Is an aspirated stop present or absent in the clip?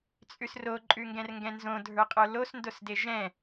absent